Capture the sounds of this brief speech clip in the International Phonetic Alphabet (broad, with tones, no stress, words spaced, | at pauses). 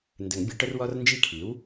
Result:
ndə˨˩˦ŋbʲə˩˥ʈə˦r wɔ˦rnd͡ʒi˦kʰi˩˥w